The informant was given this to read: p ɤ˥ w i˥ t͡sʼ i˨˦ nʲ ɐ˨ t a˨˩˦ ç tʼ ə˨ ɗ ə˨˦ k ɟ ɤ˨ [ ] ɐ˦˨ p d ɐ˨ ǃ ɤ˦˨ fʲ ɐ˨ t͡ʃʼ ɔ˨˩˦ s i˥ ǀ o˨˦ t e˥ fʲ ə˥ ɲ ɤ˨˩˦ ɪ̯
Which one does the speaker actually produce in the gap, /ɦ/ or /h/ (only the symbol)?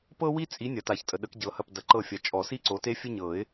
h